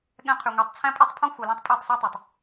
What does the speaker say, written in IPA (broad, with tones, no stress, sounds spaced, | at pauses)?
ɠ ɛ̃˧ qʰ y˨ ŋʷ e˨ tˤ t͡sʰ æ̃˦ pʼ e˦ tˤ pʰ õ˦ xʷ œ˧ l ĩ˦ tˤ pʼ œ˦˨ tˤ s o˦ tˤ ø˨ tˤ